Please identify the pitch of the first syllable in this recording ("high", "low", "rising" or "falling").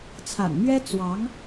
low